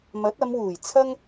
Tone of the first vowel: rising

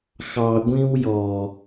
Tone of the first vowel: low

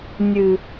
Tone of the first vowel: low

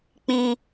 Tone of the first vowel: high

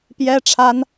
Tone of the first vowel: high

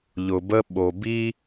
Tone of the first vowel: low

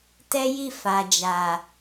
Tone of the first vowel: high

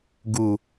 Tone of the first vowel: low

